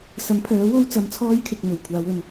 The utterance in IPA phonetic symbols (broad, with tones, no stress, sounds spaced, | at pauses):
s ɐ˨˥ m pʰ œː˨˥ w o˥ w t͡s ɐ˧ m t͡sʰ ɔː˥ j kʰ ɪ˨ k̚ m ɵ˨˩ ɥ kʷʰ aː˨˧ w ɵ˨ n